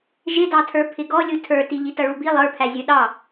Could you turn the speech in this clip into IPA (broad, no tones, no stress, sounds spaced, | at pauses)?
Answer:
ʒ ɪ d ɑ tʰ ə˞ pʰ ɪ ɡ ɔ lʲ u tʰ ə˞ t i ʎ i t ʌ ɭ u b i lˠ ə˞ pʰ æ zʲ ə˞ ɗ ɑ